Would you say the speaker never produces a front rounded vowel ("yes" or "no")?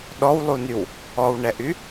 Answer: no